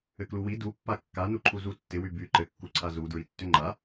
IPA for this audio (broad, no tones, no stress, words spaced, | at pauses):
ɘkluwi dupːa kːanu ǃʰuzutːɪwy by ǃɘkːuǀʰa zudɹi tːʏŋ͡ǃa